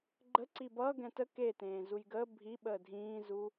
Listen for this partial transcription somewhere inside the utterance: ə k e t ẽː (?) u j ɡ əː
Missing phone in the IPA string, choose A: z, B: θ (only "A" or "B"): A